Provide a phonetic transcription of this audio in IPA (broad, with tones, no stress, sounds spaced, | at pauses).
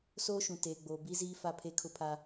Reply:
s oː˦ ʃ ũ˨ t eː˨ ɡ͡b oː˨ b i˦ z iː˦ f a˦ pʰ e˦ kʰ ʊ˦ pʰ a˦